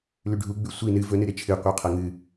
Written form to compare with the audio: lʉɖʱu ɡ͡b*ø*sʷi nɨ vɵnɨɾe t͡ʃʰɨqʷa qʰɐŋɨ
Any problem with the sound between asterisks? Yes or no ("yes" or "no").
yes